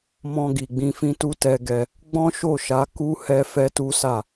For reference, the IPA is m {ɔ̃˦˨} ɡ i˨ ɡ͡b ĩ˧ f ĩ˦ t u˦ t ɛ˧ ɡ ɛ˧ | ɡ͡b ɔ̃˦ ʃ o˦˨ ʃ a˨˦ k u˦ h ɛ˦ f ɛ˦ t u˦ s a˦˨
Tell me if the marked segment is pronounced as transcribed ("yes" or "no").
no